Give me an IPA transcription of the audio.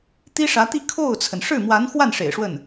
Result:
t̪ i˥ ʂ ä˧˥ t̪ i˥˧ kʰ o˥˩ ʊ̯ t͡sʰ ə˩ n ʂ ɻ̩˥˩ m w a˧˥ n x w a˥˩ n ʂ ḛ˨˩ ɪ̯ ʂ w ə˥˩ n

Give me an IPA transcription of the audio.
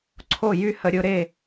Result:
ǀʰ o˥˩ j y˥˧ h ə˨˦ ɾʲ ʊ˨˦ ɾ e˥˩

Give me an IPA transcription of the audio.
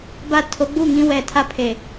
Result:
b a˦˨ tʰ o˨˦ ɡ͡b u˦˨ ŋ ĩ˦ w ɛ˨ tʰ a˦ pʰ e˨

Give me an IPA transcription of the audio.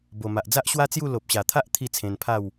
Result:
b o˨˩ m a˨ ʔ d͡z a˦ ʔ ɕ w a˦ t͡s j u˥˧ l o˨ p̚ ɕ a˨˩ t̪ʰ a˦ ʔ t̪ʰ i˥˧ t͡sʰ ẽ˧ n pʰ a˥˧ w

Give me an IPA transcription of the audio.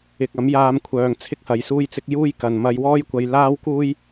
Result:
ɪ˧ k̚ ɐ˨˥ m j aː˧ m kʷʰ œː˨ ŋ t͡sʰ ɪ˥ k̚ h ɐ˨˧ j s uː˥ j t͡s ɪ˥ k̚ j uː˥ j k ɐ˨ n m ɐ˧ j w ɔː˥ j kʷ ɐ˧ j l aː˥ w k uː˥ j

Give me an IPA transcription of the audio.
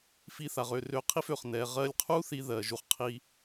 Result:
f i˧ θ a˨ ʁ ø˨ r ø˧ qʰ i˦ f ø˨ χ n ɛ˨ ʁ ɜ˧ lʲ qʰ u˦ θ i˧ ð ɜ˧ ʒ u˦ χ qʰ i˦

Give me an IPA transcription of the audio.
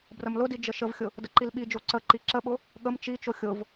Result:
b r ə m l ʊ d i d͡ʒ ə ʃ ə v xʲ ʊ | d ə ǃ i l ɓ i d͡ʒ o ǀ ə ǃ i ǁ ə ɓ ʊ | ɠ ə m t͡ʃ i t͡ʃ o xʲ ʊ v

